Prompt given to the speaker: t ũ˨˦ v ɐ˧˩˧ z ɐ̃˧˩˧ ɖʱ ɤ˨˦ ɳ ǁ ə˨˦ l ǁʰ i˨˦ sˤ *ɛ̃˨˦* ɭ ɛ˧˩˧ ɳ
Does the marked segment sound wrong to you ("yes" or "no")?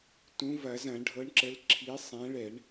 no